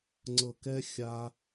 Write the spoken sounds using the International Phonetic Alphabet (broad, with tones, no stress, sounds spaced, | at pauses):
ŋ͡ǀ ɤ˨ k ɛ˧ xʲ a˦